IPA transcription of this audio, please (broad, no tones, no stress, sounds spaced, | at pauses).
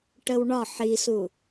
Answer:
ʈ ə w ɳ ɒ ħ i s u